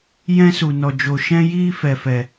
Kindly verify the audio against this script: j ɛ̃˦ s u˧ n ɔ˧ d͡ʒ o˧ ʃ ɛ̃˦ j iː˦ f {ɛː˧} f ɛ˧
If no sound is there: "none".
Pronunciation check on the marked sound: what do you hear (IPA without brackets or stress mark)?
ɛ˧